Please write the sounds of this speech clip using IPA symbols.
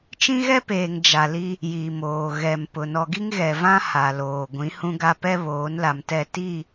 t͡ʃ ĩ˦ ɣ ɛ˦ p eː˨ ŋ d͡ʒ a˨ l i˦ | j i˨ m oː˨ ɣ ɛ˨ m p ʊ˨ n ɔ˨ ɡ i˦ ŋ ɣ ɛ˨ v ã˦ h a˨ l oː˨ ɡʷ ĩ˨˦ h ũ˦ ɡ a˦ p ɛ˦ β oː˨˦ n l a˨ m t ɛ˦˨ t i˦˨

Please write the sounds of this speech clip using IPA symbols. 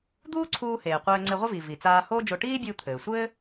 d̪ uː˥ ǀʰ uː˧ h eː˩ qʷ ɘː˧ ŋ͡ǀ e˧ ʁʷ ɘ˥ v i˩ v i˩ t͡s aː˧ h oː˥ d͡ʒ o˧ ʈ iː˥ bʲ uː˧ t̪ʰ ɘː˩ sʷ ɘː˥

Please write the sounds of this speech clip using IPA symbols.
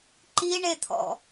ǃ i ɳ e t̪ʰ ɔ̰

